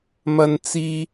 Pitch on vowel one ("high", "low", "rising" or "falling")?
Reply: low